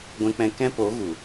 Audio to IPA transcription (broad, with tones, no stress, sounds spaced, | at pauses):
ɡʷ ɛ̃˦ k͡p ɛ̃˦ k ɛ̃˦ p o˨˦ ɣ u˨